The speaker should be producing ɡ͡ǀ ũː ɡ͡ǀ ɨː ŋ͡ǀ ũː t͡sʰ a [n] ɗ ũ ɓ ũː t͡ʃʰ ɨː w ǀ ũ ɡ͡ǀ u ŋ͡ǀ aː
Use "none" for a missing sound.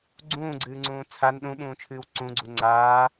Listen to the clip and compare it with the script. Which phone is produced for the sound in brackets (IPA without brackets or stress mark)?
n